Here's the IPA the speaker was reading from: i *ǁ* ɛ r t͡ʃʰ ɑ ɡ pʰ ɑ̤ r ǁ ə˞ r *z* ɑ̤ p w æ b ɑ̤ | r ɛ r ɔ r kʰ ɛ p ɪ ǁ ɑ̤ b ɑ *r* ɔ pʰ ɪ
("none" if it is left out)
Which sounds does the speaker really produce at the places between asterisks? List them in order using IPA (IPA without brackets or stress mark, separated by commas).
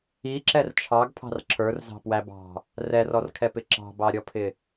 ǁ, z, ɾʲ